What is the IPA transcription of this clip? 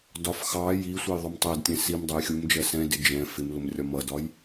dɒf xɑ ji sʷæjðˤʊmtˤædtʲɛ̃ sim dˤɜjxʲumd͡ʒɜ sɛ̃dɪ d͡ʒɛ̃ fɪmlʊm rʲɒmʌdɒj

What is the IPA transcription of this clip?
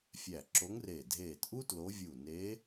fʲæ˧˩ǁo˧˥ŋre˧˩ dʱeː˧˩tʔu˥ tlo˧˥ vʲu˧˩neː˧˥

